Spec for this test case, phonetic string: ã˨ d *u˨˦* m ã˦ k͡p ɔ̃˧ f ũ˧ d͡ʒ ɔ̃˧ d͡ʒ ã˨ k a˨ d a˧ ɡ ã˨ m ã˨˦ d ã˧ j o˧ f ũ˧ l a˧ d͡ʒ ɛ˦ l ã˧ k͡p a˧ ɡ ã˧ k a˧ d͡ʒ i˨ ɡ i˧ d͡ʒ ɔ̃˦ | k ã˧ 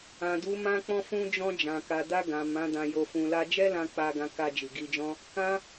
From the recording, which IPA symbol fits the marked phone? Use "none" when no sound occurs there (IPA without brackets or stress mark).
u˨˦